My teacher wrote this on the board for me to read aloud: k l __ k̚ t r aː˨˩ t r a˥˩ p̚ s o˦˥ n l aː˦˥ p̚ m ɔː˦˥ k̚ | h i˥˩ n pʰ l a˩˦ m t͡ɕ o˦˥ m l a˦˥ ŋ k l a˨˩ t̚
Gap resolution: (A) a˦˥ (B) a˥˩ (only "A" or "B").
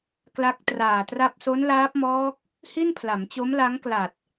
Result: A